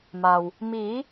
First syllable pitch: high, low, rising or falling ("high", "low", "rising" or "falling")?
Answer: low